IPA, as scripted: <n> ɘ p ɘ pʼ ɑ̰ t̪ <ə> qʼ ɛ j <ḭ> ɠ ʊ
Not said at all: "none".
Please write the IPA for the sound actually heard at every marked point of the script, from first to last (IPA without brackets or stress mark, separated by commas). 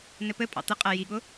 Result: n, ə, i